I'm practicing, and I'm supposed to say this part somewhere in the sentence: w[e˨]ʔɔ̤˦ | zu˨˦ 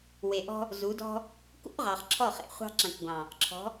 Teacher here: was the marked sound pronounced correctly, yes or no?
yes